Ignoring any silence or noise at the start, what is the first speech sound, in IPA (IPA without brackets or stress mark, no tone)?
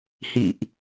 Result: h